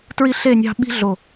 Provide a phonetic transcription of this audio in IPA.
t ɹ i˦ ɬ e˦˨ nʲ ɑ̤˦ ɓ i̤˦ ɮ o˨

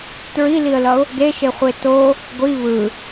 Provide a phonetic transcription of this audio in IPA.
t ɹ i l i ə̯ l ʌ ʊ̯ | d e ʃ e χʷ e t o | ɡʷ i β ɯ

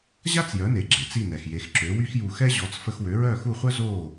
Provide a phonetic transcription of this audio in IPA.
ʑ a˥ t͡s j œ˩˥ n e˩ ɡ͡ǁ e˩ t͡s i˥˩ n ɛ˩ x j e˩˥ x ǁ ø˩˥ w y˥ x j u˧ x ɛ˥ ʑ ɔ˩˥ t͡s f ə˧ x w ø˩˥ ɹ œː˥˩ x u˥˩ χʷ œ˥ z o˥˩

